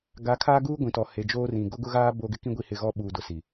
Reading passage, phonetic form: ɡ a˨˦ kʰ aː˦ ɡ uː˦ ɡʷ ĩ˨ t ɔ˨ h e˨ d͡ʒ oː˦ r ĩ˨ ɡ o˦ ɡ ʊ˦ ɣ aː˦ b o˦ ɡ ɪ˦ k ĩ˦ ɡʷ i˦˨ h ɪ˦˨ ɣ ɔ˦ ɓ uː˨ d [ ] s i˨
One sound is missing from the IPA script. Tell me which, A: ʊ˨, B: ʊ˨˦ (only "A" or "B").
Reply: A